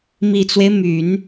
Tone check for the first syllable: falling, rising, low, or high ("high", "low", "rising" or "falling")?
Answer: low